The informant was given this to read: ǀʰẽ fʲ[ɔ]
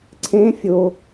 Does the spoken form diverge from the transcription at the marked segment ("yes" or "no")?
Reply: yes